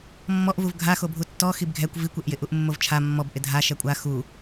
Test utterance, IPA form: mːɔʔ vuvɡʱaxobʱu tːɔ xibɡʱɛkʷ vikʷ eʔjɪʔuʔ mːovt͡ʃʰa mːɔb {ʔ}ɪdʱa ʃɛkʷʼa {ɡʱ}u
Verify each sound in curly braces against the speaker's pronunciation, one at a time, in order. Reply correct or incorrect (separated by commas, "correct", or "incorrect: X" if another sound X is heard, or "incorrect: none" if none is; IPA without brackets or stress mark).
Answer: correct, incorrect: x